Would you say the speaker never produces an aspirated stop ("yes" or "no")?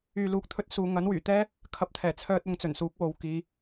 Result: no